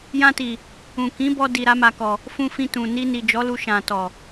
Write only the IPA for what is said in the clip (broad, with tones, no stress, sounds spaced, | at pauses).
j ã˧ t i˨ | ũ˨ k ĩ˨˦ b ɔ˧ d i˨ ɾ a˧ m a˨ k ɔ˨ | f ũ˧ f ĩ˧ t ũ˨ n i˧ n i˨ d͡ʒ ɔ˨˦ l u˧ ʃ ã˨ t ɔ˨